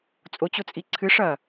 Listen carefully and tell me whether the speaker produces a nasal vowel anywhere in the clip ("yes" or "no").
no